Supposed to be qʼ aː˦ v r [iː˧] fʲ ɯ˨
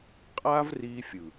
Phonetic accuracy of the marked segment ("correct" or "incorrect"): correct